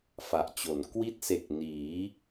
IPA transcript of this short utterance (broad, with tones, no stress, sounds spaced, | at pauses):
f a˨˩ ʔ t͡ɕ o˩˦ n k w i˦˥ t̚ s e˨˩ k̚ n iː˩˦